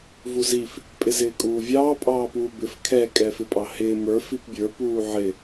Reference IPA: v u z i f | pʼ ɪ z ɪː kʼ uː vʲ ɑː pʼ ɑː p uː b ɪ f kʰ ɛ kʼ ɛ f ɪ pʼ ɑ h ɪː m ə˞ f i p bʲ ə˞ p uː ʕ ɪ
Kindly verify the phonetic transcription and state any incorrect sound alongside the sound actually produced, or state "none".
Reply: none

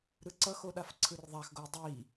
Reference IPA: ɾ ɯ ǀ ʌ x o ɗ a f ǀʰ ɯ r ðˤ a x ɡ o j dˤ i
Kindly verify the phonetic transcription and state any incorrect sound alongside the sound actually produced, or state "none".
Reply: none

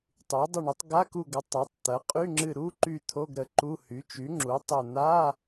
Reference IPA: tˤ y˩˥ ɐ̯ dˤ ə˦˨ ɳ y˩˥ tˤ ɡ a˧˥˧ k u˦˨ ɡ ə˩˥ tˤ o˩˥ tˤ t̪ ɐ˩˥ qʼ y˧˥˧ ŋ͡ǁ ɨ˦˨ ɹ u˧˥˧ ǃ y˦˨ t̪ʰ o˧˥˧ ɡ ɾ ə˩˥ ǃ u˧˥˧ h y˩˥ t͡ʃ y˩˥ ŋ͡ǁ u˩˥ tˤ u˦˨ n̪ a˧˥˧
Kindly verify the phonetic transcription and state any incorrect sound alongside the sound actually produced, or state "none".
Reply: ɹ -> ɾ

